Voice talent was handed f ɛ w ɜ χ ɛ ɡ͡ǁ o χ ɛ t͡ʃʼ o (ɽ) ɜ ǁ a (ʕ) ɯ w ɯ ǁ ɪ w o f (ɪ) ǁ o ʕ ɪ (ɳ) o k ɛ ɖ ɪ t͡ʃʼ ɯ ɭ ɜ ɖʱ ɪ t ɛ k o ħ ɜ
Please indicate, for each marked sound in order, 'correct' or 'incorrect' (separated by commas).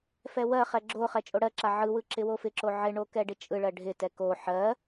correct, correct, correct, correct